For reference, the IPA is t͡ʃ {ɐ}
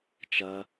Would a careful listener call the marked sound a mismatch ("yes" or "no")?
no